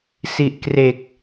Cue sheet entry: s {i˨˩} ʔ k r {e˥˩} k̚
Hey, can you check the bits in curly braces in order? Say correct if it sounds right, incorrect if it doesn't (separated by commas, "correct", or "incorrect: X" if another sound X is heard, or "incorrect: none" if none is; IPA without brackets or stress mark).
correct, incorrect: e˨˩